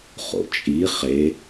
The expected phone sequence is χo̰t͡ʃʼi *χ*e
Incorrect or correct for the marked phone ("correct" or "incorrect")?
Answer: correct